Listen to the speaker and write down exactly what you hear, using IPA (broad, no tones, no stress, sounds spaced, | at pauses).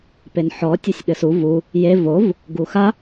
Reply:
p e n ħ ɔ tʲ u sʲ ɠ ɘ s u v u | j e v o v | ɡ u x a